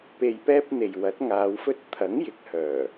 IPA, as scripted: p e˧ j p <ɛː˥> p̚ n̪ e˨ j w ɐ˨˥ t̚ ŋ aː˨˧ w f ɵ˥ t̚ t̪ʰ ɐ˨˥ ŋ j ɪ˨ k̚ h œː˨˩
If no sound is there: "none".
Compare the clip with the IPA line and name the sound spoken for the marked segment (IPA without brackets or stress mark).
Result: ɛː˥